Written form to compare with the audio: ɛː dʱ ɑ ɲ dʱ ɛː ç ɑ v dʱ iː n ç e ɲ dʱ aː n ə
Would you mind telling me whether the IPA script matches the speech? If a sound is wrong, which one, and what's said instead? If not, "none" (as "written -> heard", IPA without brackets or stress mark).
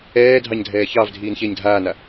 ə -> a